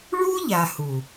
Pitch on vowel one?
high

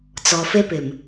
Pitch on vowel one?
low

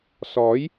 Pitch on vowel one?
rising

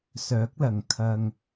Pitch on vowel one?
rising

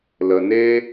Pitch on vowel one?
low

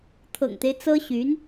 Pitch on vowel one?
low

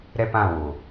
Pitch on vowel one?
high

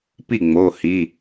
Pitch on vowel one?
falling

